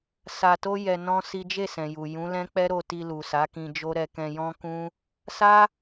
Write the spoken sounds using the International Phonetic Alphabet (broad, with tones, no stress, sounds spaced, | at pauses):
s a˧ t o˦ j ɛ˧ n ɔ̃˦ s i˦ d͡ʒ e˦˨ s ɛ̃˨ j u˨ j ũ˨˦ l ɛ̃˦ k͡p ɛ˦ ɾ o˦˨ t i˧ l u˨ s a˨˦ k ĩ˧ d͡ʒ o˦ ɾ ɛ˧ k ɛ̃˧ j ɔ̃˦ k ũ˦ | s a˦